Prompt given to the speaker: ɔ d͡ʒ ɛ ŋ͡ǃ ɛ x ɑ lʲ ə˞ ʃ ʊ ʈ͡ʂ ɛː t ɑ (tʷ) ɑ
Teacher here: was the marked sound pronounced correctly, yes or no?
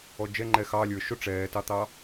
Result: no